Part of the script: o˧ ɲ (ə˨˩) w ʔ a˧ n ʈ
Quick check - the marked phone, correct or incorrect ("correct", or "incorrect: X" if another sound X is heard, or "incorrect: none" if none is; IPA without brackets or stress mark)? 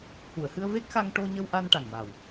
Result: incorrect: ə˧